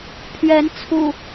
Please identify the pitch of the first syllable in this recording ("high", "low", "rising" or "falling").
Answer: rising